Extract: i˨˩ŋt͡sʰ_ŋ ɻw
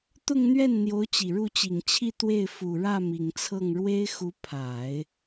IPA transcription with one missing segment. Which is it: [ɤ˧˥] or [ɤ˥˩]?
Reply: ɤ˥˩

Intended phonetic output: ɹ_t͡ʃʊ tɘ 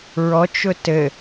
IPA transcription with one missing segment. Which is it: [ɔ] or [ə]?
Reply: ɔ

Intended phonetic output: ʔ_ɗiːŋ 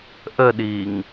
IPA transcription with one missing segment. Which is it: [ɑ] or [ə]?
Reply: ə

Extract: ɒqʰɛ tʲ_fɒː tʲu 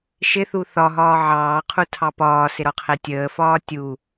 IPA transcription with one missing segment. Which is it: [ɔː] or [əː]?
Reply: əː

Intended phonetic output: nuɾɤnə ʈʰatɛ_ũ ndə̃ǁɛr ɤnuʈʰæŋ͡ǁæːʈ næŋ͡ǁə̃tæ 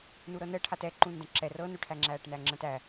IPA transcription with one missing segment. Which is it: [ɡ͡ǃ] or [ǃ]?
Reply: ǃ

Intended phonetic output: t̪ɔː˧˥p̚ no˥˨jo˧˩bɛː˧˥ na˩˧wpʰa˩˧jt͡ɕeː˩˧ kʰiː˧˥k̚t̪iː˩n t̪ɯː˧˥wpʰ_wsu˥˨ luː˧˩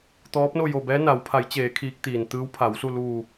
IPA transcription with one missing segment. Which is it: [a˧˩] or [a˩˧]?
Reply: a˩˧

